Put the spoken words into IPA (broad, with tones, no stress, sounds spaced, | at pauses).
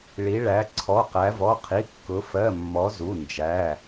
ɭ i˧˥ ɭ æ˧˥ ǀʰ ɔ˧˥˧ q æ˧˥ v ɔ˧˥˧ qʰ i˧˥˧ kː ʊ˧˥ f ɜ˧˥˧ mː ɔ˧˥ z u˧˥˧ n d͡ʒ æ˧˥˧